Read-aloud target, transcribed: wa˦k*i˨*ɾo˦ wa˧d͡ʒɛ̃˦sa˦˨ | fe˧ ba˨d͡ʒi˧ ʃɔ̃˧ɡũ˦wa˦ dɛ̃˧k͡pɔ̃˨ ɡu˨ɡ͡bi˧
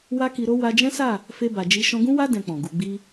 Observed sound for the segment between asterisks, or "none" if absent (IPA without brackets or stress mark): i˧